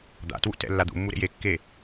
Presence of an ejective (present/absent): absent